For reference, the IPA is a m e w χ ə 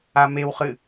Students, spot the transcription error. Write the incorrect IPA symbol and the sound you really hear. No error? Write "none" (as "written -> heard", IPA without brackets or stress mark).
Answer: ə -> ɨ